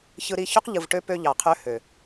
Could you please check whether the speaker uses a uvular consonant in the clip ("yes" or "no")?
yes